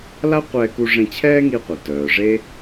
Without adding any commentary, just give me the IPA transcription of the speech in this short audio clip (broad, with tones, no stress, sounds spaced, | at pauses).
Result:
l a˥ qʷ ɛː˧ k u˧ ʐ ẽ˧ t͡ɕʰ ɛː˥ ŋ i˧ qʷ œ˩ t œː˩ ʐ e˥